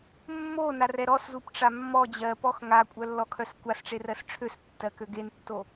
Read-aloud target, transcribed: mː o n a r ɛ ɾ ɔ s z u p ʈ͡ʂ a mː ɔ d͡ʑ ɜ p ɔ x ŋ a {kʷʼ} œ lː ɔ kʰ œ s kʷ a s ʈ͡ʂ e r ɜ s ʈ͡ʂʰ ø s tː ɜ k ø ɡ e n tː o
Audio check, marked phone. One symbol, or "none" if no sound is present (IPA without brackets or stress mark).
kʷʼ